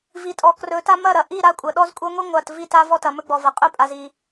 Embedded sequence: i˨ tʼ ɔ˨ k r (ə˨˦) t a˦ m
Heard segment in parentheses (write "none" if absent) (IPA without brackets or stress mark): ɵ˨˦